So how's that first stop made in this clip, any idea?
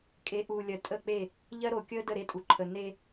ejective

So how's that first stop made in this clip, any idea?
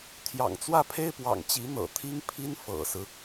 aspirated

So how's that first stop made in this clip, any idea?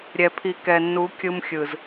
aspirated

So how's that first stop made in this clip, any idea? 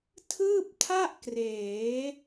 aspirated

